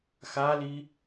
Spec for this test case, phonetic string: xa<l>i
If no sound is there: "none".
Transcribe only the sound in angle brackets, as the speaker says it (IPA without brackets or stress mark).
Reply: l